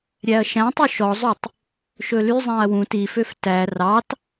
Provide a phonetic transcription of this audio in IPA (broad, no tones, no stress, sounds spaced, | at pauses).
ɾʲ æ ɐ̯ ʃ æ̃ tˤ y ʃ ɔ zˤ y tˤ | ʃ ɵ l y zˤ æ̃ ɐ̯ w ũ t i f ø f t æ r ɑ t